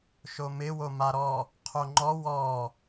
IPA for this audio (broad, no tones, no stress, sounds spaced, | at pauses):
ʃ o m ɪ w o m a ɾ ɔ | qʰ o ŋ͡ǃ ɔ w ɔ